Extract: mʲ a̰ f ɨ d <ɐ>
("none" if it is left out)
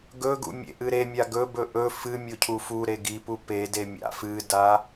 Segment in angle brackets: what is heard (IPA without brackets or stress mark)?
a